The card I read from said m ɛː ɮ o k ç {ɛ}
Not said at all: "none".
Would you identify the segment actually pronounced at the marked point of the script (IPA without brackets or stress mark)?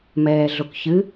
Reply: ɨ